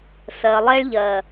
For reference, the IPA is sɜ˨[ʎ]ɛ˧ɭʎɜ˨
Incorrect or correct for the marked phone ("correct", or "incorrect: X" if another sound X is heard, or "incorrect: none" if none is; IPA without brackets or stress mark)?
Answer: incorrect: lˠ